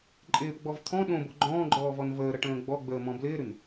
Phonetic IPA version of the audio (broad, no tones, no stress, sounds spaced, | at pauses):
ǃʼ ɪː p ɡ͡b ɔ v t̪ʰ ɔ̃ ɗ õ b o ɡ͡ǃ ɔ̃ː ɡ͡ǃ ɔː v ɔ n v əː ɾ ə ʈ ə̃ː ɡ͡b ɔ ɡ͡b əː m ɔ̃ b l ɪː ɾ ʉ n